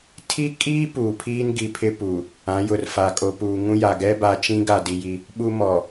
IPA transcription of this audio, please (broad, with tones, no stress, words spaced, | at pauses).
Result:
tʰi˦kʼiː˦ puː˨pʰiː˦nɡi˨pʰɪ˦ pu˨ | ã˨˦jʊ˨rfa˨ kʼo˨puː˨ŋũ˦ja˨ ɡɛ˦ba˨t͡ʃĩ˦ɡa˨ di˨ji˦ | ɓu˦mɔ˨